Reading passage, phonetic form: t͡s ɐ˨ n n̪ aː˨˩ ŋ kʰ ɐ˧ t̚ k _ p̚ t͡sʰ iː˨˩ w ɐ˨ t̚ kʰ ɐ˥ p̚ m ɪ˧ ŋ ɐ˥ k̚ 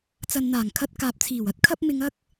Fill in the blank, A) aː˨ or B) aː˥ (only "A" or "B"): A